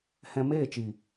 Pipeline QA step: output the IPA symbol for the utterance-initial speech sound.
h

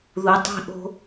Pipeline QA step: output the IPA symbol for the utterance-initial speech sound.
ð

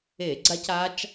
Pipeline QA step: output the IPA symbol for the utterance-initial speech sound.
e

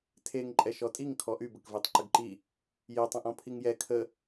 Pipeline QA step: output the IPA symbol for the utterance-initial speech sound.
tʰ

